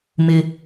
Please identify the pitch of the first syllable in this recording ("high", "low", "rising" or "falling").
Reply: high